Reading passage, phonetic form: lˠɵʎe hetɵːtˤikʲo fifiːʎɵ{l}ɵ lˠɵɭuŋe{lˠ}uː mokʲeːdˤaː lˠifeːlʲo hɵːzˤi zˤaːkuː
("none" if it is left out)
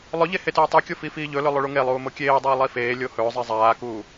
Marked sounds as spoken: l, lˠ

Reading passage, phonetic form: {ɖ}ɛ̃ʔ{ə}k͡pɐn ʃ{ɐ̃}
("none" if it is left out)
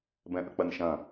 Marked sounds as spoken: b, ə, ɐ̃

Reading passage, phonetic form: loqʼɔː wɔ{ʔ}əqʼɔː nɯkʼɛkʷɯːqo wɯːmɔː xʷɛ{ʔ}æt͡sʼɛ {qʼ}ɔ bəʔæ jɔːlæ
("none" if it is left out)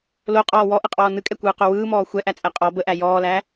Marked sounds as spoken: ʔ, ʔ, qʼ

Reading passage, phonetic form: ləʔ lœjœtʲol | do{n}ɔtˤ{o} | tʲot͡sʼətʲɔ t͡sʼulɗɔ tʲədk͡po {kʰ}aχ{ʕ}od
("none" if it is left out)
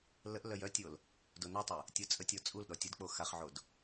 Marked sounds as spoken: n, u, x, ʕ

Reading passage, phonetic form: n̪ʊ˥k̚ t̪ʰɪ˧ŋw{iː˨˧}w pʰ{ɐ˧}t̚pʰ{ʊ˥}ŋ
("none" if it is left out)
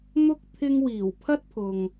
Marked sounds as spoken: iː˨˩, ɐ˥, ʊ˨

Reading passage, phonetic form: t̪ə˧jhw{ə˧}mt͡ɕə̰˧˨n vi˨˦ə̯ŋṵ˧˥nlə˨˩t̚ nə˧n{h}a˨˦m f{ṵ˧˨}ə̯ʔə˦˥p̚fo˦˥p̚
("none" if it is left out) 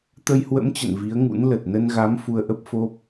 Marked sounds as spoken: ə̰˧˥, ɣ, u˧

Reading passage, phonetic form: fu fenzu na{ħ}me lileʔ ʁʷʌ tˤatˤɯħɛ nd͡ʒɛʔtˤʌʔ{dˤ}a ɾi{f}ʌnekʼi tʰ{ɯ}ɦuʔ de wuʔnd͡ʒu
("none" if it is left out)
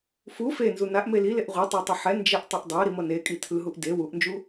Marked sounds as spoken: ʔ, dˤ, m, ɯ

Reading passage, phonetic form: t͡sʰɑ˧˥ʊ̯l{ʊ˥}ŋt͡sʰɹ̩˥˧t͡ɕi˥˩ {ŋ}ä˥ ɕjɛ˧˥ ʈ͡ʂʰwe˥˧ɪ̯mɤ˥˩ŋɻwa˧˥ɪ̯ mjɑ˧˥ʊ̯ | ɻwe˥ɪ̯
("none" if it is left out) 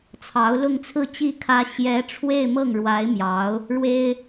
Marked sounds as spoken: ʊ˥˧, kʰ

